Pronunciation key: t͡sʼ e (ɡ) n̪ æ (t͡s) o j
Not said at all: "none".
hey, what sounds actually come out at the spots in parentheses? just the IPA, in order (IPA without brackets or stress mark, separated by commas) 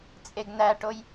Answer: ɡ, ʈ